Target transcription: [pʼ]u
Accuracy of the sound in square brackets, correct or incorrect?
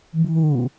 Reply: incorrect